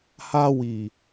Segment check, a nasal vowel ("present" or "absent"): absent